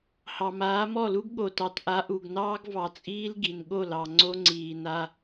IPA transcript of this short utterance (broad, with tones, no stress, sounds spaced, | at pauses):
h ɑ˨ m aː˨˦ m ɔ˦˨ l u˦ ɡ ɠ o˨ t ɑ˨ t ʔ a˨˦ ʔ u˨ ɡ n ɑː˦ ɡ v ɑ˨ t͡sʼ iː˦ l ɡ i˨ n ɠ o˦˨ l ɑ˨ ŋ͡ǀ o˦ ŋ͡ǀ iː˨ n a˦